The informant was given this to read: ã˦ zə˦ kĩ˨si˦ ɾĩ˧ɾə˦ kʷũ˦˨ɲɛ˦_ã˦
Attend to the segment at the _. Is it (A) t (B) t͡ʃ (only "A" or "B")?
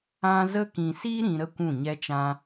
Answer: B